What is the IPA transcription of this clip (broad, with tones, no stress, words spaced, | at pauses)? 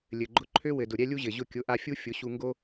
lʲɘ˩ɡ͡ǃʊ˧ ǃʰø˥wɘ˩dʊ˩ ɾʲɛ˥lʲu˥ʑɘ˩ʑʊ˥˩ kʲʊ˩˥ʔa˧fʲu˥ fʲʊ˩˥ɕu˧ŋɡo˥